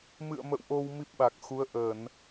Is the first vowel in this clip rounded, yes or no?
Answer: no